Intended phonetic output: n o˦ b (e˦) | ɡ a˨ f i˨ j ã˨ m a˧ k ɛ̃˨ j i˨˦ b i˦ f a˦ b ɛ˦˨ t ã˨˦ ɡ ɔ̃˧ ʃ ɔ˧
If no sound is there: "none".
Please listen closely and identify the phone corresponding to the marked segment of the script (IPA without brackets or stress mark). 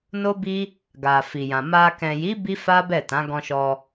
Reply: i˦